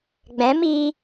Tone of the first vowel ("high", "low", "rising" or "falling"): rising